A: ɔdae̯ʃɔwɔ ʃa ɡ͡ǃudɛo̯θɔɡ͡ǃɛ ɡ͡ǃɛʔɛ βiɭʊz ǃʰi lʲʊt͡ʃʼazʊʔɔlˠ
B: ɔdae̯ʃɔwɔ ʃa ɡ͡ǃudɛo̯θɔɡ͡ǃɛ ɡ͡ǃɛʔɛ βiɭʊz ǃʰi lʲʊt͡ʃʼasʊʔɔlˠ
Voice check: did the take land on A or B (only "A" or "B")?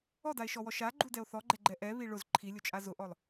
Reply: A